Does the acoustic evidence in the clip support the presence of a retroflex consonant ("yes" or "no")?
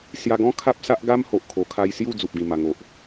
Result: no